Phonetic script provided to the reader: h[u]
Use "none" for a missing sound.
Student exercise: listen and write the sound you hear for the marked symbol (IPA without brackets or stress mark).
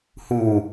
u